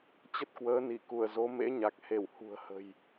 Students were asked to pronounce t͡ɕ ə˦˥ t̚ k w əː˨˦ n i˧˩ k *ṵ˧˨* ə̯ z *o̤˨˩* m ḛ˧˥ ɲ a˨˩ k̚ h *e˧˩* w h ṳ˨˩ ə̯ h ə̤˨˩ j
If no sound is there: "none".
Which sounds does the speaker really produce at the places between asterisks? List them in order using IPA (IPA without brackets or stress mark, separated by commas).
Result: u˧˩, o˨˦, e˧˩